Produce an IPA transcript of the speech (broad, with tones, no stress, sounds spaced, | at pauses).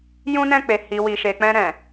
j ũ˦ n ɛ̃˦˨ k͡p e˨ h i˨ w i˨ ʃ e˨ k͡p ɛ̃˧ ɾ ɛ̃˨